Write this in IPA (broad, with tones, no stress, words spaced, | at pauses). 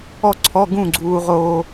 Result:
ɔ˥˧ǀʰɔ˧˥˧ ɡũ˥˧ɡ͡ǀuː˧ ʁoː˧